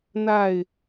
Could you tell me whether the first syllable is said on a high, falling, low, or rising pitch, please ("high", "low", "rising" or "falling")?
falling